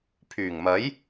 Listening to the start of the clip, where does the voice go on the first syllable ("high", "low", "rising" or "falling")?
low